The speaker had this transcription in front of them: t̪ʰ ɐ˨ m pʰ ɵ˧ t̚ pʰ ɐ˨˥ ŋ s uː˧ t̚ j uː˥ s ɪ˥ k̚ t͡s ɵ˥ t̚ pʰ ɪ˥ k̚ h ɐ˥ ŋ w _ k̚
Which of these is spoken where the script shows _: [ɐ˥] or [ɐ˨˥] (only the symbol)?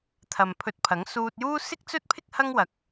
ɐ˨˥